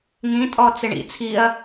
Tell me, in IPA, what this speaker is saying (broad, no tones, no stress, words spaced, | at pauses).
ŋĩtʼɔ t͡sɪɳḭ t͡sʰiɐ̯